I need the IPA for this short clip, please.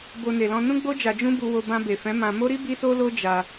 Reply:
b o˧ n e˨ l ɔ̃˧ n ũ˦ ɡ͡b o˦ d͡ʒ a˧ d͡ʒ ũ˦ b u˧ w o˧ b ã˧ b e˨ f ɛ̃˨˦ m ã˧ m o˦ ɾ i˦ b i˦ s o˦ l o˦ d͡ʒ a˧

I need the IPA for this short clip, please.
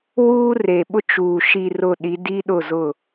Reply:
w uː˦ r e˨ ɓ ʊ˦ t͡ʃ uː˨ ʃ i˨ r ʊ˨ ɗ i˨˦ d i˦ ɗ ʊ˦˨ z ʊ˦˨

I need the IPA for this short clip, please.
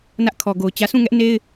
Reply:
n ä˦ ʔ kʰ ɔ˨ ɡ o˨ ʊ̯ t͡ɕ ä˦ sʰ ũ˦˨ ŋ ɛ˦ ʔ n e˦ ɪ̯

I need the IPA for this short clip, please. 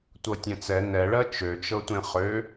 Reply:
tʷ ɤ tʲ ɛ̃ t͡s ɛ n ɛ ɭ ɜ t͡ʃ ø t͡ʃ ɤ tʷ ẽ χ ø

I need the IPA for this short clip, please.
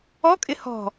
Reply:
ɔ kʼ ɪ h ɔ̤

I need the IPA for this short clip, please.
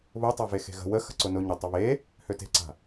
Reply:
β ʊ tˤ a v e x e̤ ɣ ə̤ w ə x ə̤ ǀ ʊ n ʊ ɲ ə tˤ ʊ β e | h ø t e̤ ǀ a̤

